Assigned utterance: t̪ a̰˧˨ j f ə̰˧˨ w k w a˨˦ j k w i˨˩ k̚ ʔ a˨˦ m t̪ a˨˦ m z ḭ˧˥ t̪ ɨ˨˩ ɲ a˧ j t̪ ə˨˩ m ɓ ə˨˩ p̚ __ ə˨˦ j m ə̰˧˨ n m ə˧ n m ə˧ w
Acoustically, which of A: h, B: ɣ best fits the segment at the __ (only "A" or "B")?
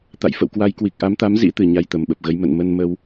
B